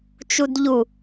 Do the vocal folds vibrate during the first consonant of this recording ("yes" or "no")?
no